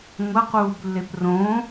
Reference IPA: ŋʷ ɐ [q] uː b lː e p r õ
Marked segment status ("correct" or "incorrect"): correct